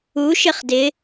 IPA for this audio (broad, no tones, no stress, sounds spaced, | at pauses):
u ʃ ɪ χ d ɪ